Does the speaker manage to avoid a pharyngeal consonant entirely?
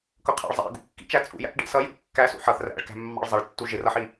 no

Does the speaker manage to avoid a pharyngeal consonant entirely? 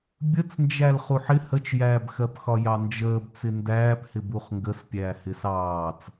no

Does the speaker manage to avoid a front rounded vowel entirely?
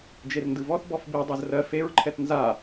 yes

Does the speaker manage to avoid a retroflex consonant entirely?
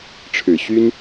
no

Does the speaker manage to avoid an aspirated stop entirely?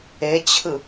no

